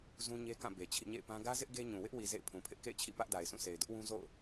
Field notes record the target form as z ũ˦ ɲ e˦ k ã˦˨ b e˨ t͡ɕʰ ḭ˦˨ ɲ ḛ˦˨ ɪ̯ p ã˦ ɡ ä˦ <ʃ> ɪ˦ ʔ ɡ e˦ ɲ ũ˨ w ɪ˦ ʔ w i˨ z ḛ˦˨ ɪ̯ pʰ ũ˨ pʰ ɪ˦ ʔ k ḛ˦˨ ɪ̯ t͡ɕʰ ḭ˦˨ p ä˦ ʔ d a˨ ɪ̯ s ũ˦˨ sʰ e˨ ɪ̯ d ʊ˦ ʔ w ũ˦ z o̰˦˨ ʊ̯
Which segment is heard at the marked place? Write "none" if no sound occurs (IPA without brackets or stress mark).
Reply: z